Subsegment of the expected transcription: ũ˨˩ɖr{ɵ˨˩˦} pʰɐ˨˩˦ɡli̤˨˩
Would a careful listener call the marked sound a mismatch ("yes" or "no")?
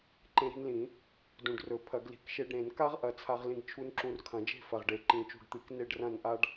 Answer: no